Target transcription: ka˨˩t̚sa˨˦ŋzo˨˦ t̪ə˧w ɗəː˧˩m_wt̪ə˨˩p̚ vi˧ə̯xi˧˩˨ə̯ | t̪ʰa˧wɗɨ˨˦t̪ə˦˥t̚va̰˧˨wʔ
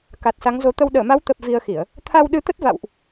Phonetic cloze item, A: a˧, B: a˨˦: B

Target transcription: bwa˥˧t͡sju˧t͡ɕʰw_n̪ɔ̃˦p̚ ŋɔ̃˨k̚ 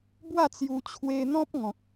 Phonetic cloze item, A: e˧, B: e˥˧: A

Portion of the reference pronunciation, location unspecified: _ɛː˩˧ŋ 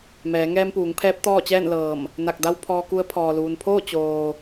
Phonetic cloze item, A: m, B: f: A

